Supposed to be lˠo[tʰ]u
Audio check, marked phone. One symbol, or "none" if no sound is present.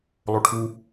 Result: ʈʰ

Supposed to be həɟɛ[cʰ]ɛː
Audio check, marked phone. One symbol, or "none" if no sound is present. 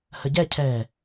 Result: cʰ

